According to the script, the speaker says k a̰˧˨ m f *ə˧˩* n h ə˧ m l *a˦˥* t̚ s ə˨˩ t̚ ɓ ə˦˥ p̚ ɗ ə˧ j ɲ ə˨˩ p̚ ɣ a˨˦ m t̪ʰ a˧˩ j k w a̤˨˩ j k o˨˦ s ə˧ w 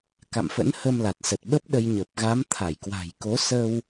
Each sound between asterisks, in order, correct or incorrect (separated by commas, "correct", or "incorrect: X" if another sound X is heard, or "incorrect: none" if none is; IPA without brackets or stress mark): incorrect: ə̰˧˥, incorrect: a˨˩